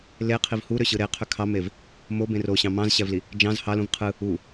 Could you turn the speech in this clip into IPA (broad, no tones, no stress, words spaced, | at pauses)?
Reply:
leqʰiv huɾøɕɯ ɾeqʰø kʰɑmev | mobẽr oɕɑ̃ mɑ̃zɕævli | d͡ʒɑ̃z hɑlũv qʰɯ | u